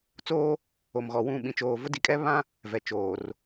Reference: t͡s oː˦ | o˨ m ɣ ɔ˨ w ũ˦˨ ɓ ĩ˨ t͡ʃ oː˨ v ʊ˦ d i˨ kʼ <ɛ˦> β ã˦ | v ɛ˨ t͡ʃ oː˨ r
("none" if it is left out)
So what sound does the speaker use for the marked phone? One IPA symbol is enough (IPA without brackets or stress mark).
ɛ˦